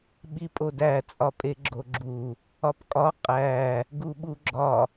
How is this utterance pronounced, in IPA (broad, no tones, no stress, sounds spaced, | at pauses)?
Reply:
ɓ i pʼ o d æ t͡sʼ ɒ pʼ e ɡ͡ǁ o ɡ͡ǁ u | ɒ p kʼ ɒ qʼ æ | ɡ u ɓ u ɡ͡ǁ ɒ